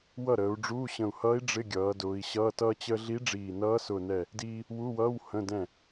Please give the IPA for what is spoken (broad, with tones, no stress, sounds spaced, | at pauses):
w ʌ˥˩ ɾ əː˩˧ u̯ ɖ͡ʐ uː˧˥˧ ɕ ə̃˨˩ u̯ h ʌː˧˥ i̯ ɖ͡ʐ ɪ˧˥˧ ɡʲ ʌː˩˧ d ʊː˩˧ i̯ ɕ ʌː˧˥˧ t ʌː˥ t͡ɕ əː˥ ɮ i˧˥ ɖ͡ʐ iː˨˩ n ʌː˧˥ s ʊ˨˩ n ɛ˥˩ | d iː˥ | w u˧˥˧ w ʌː˧˥˧ w h ə̃˧˥˧ d ɛ̃˥˩